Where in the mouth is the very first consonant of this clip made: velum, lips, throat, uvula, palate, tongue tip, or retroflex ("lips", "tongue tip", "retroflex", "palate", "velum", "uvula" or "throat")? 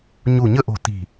palate